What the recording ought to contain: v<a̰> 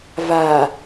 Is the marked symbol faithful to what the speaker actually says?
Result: no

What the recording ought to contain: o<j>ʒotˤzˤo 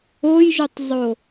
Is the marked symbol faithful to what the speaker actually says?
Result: yes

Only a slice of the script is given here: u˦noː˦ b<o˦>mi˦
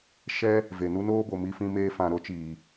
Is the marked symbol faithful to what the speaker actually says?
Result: no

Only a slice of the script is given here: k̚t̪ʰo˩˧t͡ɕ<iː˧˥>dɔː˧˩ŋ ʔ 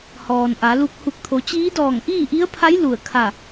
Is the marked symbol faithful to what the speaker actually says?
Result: yes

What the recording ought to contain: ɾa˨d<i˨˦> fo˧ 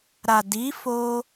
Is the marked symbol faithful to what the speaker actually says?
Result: yes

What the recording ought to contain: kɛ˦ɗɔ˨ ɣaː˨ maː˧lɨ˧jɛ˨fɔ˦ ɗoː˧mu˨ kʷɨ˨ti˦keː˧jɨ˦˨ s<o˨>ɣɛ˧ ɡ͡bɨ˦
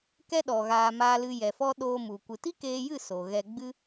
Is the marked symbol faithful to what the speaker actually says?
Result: yes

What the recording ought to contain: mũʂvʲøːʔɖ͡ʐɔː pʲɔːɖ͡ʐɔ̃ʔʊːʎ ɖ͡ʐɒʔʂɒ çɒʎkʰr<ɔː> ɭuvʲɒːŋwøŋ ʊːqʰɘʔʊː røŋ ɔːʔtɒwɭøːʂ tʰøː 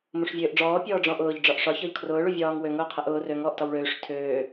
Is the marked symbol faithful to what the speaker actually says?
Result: no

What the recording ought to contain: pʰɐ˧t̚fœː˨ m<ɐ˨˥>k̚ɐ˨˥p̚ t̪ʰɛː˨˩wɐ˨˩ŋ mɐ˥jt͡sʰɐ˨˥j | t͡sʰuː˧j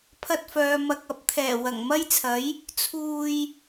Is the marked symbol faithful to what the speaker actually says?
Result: no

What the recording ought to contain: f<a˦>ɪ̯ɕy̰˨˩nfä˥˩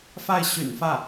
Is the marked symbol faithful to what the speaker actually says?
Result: no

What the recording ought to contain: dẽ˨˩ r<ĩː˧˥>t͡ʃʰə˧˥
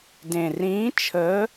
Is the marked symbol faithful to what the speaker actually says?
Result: yes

